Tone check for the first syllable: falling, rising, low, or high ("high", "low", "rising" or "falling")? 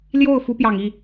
falling